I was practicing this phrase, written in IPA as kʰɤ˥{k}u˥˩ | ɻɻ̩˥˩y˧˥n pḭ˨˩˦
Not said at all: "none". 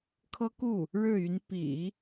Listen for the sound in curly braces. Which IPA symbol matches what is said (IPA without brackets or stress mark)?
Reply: k